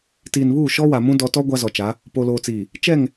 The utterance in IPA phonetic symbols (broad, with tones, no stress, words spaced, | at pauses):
tiː˨nβuː˦˨ ʃɔ˦wa˨mũ˦ dɔ˦ tɔ˦ ɡʷa˦zɔ˨t͡ʃa˨˦ | po˨loː˨t͡siː˨ | t͡ʃɛ˦˨ŋ